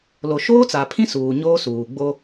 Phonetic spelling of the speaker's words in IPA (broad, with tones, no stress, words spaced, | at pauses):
lo˨ʃoː˦t͡sa˨pʰĩ˦ suː˨ ɲoː˦suː˨ ɡ͡bo˦